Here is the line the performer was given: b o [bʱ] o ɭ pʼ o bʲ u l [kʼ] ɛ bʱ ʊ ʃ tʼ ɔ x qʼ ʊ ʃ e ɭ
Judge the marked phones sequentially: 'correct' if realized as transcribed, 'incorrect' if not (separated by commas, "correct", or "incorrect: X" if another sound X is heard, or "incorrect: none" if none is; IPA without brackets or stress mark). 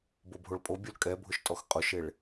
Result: correct, correct